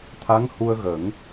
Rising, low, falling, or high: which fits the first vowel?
rising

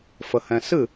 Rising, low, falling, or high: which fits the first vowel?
low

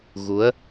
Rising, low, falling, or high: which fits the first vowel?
rising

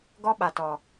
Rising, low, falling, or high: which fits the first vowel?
high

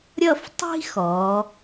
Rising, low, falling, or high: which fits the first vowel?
falling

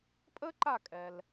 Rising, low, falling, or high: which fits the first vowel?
high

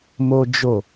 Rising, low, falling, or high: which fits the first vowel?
high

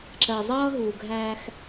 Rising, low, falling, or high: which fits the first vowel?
low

